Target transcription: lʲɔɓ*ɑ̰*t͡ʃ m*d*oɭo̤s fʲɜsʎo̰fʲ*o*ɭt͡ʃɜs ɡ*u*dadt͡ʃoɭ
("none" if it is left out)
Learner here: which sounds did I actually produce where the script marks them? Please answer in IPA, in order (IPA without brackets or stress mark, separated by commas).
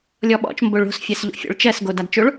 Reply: ɔ̰, b, o̰, o